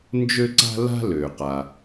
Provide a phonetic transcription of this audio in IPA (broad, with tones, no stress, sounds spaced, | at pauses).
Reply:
n d͡ʒ ø˥ ǀ a̤˥ l a̤˥ l ø˩ q a˩